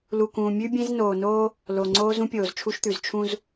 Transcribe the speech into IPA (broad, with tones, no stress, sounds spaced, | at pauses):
l u˨ k ũː˨ mʲ ʉ˦ bʲ ẽ˦ z n oː˨ n oː˦ | l o˨ ŋ͡ǀ oː˦ z ũ˦ pʲ oː˨ z t͡ʃʰ u˦ ʃ t̪ ʉ˨ z t͡ʃʰ ũ˦ z